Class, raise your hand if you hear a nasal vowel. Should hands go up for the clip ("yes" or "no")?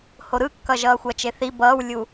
no